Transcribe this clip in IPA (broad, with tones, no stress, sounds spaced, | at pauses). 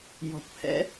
j ɔ̤˨ kʷ h ɛ̰˧